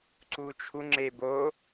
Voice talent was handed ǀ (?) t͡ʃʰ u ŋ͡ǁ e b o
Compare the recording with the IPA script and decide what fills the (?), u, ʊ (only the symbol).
u